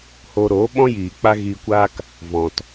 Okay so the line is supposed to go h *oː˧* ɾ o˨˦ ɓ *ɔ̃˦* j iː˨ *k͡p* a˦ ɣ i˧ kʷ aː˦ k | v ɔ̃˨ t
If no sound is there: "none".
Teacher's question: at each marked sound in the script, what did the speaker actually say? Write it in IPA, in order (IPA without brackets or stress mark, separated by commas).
o˧, ɔ̃˦, k͡p